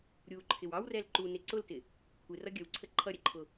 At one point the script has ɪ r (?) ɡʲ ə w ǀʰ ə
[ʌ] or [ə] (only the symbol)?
ʌ